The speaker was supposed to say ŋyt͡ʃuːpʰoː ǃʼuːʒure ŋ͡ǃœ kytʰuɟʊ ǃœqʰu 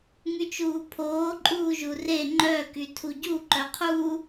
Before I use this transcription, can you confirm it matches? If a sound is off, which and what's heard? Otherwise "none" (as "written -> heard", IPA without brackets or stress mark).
ʊ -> u